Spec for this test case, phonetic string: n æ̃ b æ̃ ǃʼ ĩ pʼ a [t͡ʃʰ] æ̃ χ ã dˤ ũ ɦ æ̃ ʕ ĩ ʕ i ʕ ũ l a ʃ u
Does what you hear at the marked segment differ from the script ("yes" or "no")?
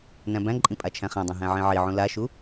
no